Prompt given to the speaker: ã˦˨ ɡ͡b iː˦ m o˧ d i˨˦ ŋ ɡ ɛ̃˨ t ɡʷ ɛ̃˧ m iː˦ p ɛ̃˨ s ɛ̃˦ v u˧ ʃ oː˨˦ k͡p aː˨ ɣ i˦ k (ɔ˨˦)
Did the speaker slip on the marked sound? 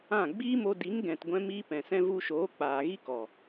yes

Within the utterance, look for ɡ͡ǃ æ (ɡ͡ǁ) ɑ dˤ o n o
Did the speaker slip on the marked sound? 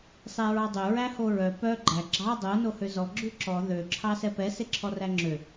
no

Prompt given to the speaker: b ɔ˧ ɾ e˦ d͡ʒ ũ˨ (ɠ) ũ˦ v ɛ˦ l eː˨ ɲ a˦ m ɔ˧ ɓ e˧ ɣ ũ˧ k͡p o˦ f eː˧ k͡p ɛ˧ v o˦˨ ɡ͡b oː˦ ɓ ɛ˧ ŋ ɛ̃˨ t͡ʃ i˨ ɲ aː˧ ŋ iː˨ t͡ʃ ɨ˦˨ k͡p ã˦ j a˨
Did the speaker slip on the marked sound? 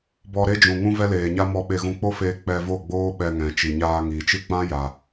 yes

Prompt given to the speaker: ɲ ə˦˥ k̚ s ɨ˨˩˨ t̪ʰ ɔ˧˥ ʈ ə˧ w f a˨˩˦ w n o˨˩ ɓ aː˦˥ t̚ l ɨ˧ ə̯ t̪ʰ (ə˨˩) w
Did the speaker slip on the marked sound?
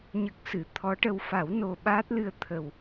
no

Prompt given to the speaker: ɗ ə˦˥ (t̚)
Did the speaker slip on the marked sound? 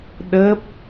yes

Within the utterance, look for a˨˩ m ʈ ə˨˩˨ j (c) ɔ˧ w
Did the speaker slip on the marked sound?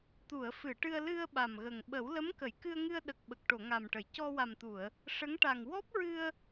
no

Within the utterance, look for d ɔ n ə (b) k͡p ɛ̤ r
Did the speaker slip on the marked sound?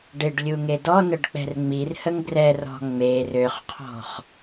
yes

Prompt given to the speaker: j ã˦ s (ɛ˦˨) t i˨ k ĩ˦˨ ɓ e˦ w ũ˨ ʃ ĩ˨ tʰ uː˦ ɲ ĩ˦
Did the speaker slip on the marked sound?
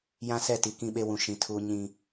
no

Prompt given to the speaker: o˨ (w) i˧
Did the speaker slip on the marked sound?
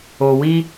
no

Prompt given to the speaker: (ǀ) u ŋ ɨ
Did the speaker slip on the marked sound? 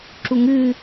yes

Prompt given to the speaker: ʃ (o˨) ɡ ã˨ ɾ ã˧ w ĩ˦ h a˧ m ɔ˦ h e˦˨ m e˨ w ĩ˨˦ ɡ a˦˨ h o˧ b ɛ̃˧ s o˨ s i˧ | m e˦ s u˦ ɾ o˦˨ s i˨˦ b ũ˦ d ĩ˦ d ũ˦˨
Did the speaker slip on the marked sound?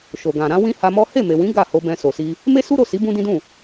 no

